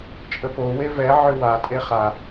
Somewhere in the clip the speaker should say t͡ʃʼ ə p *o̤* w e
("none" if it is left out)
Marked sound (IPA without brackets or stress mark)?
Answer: o